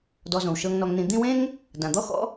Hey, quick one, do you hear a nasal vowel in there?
yes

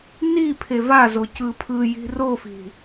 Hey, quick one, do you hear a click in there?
no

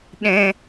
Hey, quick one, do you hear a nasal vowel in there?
yes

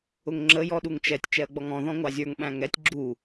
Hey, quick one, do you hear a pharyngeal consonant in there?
no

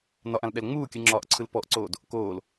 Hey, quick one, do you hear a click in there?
yes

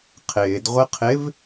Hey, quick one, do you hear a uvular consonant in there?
yes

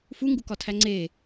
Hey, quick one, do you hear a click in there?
yes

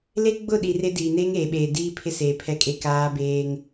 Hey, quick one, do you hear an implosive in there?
yes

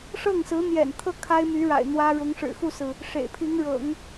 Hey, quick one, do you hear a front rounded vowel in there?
yes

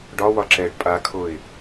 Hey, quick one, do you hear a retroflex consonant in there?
yes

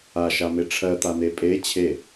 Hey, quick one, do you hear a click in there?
no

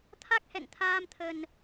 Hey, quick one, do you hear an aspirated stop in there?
yes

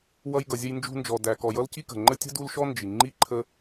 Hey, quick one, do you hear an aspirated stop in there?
yes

